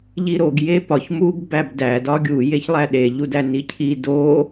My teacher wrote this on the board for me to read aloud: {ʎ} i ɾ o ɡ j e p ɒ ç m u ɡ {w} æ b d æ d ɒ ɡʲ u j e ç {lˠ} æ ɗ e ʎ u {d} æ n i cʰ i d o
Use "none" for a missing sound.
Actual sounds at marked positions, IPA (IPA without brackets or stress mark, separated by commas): ʎ, b, lˠ, d